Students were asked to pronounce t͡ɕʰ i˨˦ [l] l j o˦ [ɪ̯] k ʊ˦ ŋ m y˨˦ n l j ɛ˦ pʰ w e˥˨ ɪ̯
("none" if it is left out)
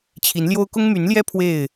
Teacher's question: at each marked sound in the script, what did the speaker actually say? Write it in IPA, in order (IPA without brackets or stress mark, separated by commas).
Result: n, ʊ̯